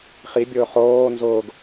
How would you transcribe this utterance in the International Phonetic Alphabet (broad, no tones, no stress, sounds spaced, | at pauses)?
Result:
χ i bʲ ʊː χ oː n z ʊː ɡ